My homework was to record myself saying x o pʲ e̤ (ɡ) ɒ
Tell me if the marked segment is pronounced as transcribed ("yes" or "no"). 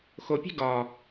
yes